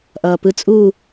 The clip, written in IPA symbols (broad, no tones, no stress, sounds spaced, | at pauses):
ʔ ʌː p ɯ t͡sʼ u